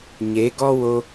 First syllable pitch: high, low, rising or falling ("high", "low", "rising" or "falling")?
rising